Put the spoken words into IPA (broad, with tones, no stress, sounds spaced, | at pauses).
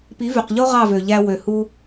p i˨˦ v y˨ q ʎ o˦ ʁ ɑ˦˨ v ø˨ ʎ æ˧ w ø˨ h u˧